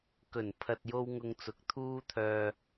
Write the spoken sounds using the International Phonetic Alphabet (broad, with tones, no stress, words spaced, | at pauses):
kɵ˨˩npʰɐ˨t̚jo˧w ŋʊ˧ŋt͡sʊ˨˥k̚t̪ʰuː˥t̪ʰœː˧